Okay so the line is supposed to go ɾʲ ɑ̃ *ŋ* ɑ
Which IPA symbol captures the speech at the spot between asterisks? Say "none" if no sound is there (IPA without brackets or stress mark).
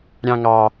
ŋ